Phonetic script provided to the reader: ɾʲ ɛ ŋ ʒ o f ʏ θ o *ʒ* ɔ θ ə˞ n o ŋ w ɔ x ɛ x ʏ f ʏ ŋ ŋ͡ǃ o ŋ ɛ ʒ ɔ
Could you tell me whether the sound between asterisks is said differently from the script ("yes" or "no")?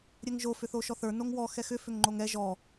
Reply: yes